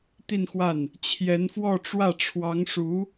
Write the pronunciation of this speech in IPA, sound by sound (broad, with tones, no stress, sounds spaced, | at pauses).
t̪ i˥˧ n x w a˥˩ n | t͡ɕʰ j ɛ˧˥ n f w ɔ˥˧ ʈ͡ʂ w ä˥˩ ʈ͡ʂʰ w ɑ˧˥ ŋ ʂ u˧˥